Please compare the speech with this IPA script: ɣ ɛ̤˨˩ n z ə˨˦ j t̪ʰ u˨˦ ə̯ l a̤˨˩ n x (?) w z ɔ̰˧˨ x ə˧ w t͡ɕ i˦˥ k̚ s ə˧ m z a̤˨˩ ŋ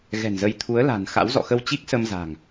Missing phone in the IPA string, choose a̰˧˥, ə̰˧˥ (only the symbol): a̰˧˥